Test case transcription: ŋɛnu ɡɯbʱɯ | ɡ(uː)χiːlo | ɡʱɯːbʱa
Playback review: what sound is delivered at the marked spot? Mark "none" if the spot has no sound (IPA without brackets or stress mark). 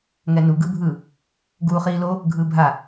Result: uː